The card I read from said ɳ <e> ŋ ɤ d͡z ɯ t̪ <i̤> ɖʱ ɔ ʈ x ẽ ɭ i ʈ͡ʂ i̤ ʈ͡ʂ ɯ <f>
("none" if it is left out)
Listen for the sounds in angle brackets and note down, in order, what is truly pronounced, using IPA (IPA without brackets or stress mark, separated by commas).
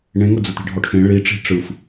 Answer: ẽ, i̤, f